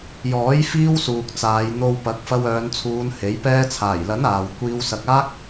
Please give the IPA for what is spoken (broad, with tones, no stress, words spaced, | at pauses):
jɔː˨˥j fiː˥wsuː˨k̚t͡saː˨˧j n̪o˧wpɐ˨˥k̚ fɐ˧wœː˨˧nt͡sʰuː˨˧n he˨˥j pɛː˧t͡sʰaː˨˩jlɐ˨˥n aː˨w kʷiː˧wsɐ˨k̚ aː˥k̚